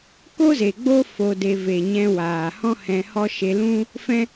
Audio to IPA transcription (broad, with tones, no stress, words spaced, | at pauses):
ko˦ze˨ɡ͡bo˦ fo˧de˧ ve˨ɲɛ̃˧waː˨ hɔ̃˦hɛ̃˧hɔ˦ ʃe˧lũ˦ | fɛ̃˦